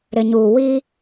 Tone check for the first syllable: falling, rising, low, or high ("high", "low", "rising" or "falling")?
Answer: low